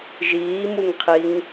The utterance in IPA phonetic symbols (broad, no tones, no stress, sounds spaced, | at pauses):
ʒ iː m u ŋ qʰ i ŋ